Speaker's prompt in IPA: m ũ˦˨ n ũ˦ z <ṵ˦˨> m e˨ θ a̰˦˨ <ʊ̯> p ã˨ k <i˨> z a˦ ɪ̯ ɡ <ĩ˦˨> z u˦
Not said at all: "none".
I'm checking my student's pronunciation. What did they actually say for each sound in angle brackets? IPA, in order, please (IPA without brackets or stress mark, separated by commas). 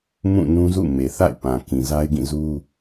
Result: ṵ˦˨, ɪ̯, ĩ˨, ĩ˦˨